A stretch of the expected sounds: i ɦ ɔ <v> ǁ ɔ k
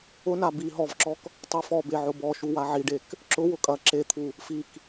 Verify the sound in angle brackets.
correct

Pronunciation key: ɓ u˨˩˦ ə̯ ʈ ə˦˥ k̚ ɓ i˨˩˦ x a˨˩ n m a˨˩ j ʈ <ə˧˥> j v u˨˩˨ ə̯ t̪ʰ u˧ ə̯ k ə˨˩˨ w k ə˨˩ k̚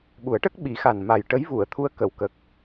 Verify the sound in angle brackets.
correct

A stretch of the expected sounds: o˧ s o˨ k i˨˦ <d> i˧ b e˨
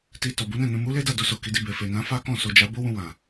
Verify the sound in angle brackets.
correct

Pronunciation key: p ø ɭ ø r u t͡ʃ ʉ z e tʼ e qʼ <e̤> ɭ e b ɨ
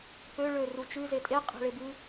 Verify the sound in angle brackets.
correct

